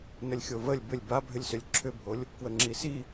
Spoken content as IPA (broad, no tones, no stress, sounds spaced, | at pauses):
n ə lʲ xʲ o v ə lʲ b ʏ lʲ b a bʱ ʏ lʲ s ʏ lʲ ǁʰ ʏ bʱ o lʲ | k w ə ŋ͡ǁ i s i